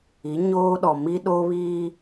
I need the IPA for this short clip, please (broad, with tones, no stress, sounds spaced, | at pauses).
i˨˦ ɲ oː˦ ɗ ɔ˨ m i˦ ɗ o˦ β iː˦